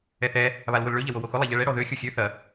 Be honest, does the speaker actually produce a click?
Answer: no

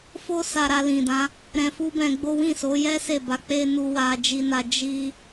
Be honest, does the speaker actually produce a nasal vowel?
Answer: yes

